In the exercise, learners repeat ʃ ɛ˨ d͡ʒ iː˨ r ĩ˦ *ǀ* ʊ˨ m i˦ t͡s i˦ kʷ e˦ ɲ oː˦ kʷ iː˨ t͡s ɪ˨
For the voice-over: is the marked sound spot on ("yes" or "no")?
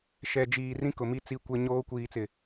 no